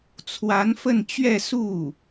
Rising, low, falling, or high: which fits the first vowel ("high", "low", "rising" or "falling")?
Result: rising